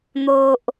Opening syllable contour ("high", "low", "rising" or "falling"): low